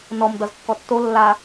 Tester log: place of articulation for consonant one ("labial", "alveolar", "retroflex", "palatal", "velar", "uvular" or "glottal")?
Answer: alveolar